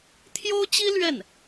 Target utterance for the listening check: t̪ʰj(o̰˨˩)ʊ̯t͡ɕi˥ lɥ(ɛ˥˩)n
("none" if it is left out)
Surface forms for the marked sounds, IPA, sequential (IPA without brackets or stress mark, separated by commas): o˥, ɛ˥˩